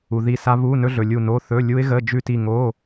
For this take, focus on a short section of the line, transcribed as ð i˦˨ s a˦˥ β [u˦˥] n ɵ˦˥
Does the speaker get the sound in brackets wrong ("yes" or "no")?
yes